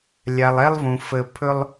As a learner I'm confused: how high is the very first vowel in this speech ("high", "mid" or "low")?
low